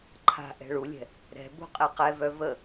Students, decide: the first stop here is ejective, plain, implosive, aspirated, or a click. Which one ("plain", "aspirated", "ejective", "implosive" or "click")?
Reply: click